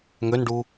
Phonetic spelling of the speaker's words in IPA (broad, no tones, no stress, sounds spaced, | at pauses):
ŋ ø n ɖ u